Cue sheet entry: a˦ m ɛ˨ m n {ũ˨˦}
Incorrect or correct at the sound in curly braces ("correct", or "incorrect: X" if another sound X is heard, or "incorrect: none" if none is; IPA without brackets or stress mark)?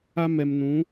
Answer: correct